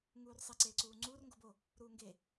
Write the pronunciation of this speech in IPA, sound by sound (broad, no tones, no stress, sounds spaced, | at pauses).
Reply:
ŋ uː r sˤ i ǀ eː ǀ uː ŋ͡ǀ uː r ŋ ɡ o b o | ɾ uː ŋ ɡ e